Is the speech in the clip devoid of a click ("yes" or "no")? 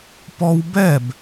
yes